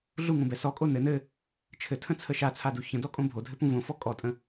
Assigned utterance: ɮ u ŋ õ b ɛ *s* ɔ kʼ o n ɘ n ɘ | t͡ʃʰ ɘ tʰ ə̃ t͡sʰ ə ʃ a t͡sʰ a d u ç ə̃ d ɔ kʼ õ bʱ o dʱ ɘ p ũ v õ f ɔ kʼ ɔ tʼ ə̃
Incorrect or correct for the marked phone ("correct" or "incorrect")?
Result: correct